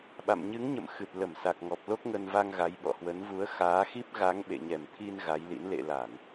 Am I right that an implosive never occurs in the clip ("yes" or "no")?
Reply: no